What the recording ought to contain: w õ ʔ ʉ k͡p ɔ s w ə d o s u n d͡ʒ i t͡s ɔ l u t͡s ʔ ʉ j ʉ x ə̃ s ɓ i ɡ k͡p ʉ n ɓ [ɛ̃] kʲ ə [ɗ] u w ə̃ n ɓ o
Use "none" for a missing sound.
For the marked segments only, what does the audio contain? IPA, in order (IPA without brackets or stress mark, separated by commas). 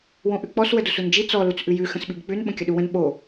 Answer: ə̃, ɗ